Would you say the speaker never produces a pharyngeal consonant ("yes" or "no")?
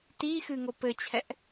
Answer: yes